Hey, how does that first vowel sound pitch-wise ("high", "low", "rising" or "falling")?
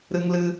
high